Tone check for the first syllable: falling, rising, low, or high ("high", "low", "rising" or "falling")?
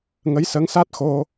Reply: rising